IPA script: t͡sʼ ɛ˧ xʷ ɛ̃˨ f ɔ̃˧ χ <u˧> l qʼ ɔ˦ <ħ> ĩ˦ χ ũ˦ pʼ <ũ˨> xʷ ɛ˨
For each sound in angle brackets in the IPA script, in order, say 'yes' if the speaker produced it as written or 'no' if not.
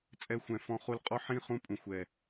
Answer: yes, yes, yes

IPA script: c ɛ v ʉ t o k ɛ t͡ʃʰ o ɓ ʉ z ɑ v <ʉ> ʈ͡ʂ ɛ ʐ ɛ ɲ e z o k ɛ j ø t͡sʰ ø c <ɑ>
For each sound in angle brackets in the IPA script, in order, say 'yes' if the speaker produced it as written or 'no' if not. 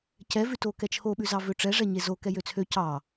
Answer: no, yes

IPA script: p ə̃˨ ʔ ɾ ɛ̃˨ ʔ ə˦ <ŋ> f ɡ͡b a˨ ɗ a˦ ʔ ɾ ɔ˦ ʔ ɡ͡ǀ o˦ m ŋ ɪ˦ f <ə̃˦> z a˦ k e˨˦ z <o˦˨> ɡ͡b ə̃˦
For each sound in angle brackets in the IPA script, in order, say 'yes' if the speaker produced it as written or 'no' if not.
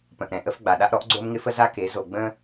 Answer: no, no, no

